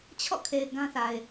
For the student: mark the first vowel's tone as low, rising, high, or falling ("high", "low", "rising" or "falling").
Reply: falling